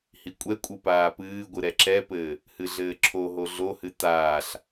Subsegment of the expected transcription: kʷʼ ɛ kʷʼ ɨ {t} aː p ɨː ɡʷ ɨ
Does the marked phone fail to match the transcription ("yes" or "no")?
yes